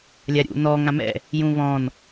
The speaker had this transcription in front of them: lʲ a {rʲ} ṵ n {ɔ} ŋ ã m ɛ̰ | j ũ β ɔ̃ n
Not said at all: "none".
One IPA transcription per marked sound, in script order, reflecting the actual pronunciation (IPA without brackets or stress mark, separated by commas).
ɾʲ, ɔ